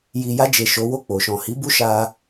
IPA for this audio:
ji˨ja˧d͡ʒe˨ ʃo˨˦wo˦˨k͡po˨ ʃɔ̃˨hi˨˦ bu˦ʃa˧

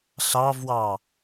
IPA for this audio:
ɬɑvwɑ

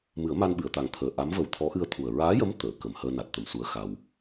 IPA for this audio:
mɨ˨˩˦ə̯ma˧nɓɨ˨˩˨ə̯t̪a˨˩ŋ t̪ʰəː˨˩ʔa˧˥m və˨˩w t̪ʰɔ˧˥ʔɨ˧ə̯t̪ʰu˨˩ə̯ ɹaː˧˥jə˧˥m t̪əː˨˩˨kə˨˩mhəː˧ na˨˩t̚t̪ə˨˩msu˧˥ə̯ xa˧w

